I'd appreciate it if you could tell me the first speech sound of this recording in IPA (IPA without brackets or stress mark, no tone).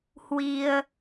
h